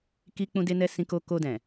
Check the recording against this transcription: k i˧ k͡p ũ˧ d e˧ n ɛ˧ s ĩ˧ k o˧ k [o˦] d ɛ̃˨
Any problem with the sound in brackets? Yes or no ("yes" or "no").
yes